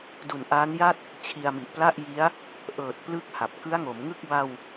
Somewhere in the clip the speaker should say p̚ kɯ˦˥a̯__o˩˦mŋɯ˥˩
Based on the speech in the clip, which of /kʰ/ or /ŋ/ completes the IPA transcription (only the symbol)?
ŋ